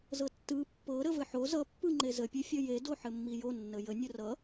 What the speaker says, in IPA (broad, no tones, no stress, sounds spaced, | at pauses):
z ɤ tː ɯ pː ɤ ɾ ə v ɘ ħ o z ʌ pː ɯ ŋ͡ǃ e z ə pʲ e fʲ ʌ j e d o ħ ɘ mː i j o nː ə j ə nʲ ə r ʌ